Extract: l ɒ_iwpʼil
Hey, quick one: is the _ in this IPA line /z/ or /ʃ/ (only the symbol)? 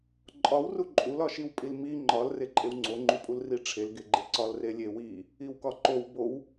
ʃ